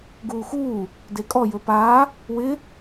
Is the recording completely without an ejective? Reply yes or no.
no